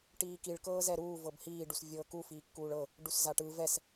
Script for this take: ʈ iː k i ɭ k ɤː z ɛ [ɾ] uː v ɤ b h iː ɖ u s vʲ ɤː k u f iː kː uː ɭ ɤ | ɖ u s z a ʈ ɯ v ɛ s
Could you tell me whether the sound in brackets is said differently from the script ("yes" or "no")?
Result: no